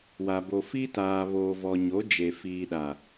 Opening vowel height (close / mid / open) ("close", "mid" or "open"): open